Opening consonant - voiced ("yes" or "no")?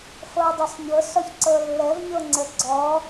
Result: no